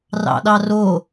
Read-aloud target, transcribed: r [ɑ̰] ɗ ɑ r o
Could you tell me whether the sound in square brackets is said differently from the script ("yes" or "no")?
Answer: no